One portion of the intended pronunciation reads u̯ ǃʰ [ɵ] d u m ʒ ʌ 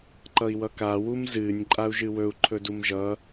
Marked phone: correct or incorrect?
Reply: correct